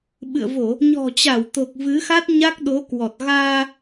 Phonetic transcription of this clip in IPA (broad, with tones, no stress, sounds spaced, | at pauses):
ɓ ɨ̰˧˨ ə̯ v o˧˩˨ | ɲ ɔ̤˨˩ t͡ɕ a˧˩ w t̪ o˨˩ k̚ v ɨ˨˦ x a˦˥ t̚ ɲ a˦˥ k̚ ɗ o˨˦ k w ɔ˨˩ t̚ ɣ aː˧